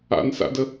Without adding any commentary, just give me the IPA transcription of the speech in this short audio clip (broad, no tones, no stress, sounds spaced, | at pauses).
a̰ n s a̰ d ə